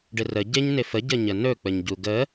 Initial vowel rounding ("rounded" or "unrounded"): unrounded